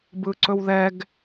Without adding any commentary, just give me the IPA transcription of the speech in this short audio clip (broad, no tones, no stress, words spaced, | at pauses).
bɯǀɵwðɛɡ